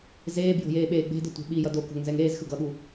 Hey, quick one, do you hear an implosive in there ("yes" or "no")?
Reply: yes